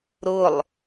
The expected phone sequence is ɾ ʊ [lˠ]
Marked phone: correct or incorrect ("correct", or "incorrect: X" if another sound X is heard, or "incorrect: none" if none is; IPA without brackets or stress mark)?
correct